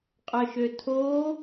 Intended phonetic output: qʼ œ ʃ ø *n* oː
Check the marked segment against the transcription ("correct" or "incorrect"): incorrect